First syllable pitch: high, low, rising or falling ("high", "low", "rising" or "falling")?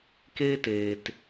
high